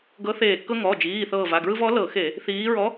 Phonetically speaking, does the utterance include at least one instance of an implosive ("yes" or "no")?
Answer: no